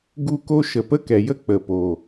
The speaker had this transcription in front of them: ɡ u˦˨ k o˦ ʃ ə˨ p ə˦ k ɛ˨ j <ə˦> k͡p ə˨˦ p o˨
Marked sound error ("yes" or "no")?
no